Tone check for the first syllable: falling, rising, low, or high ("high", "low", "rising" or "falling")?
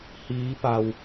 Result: rising